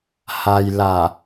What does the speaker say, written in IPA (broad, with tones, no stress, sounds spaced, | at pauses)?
h a˧ j l a˧˩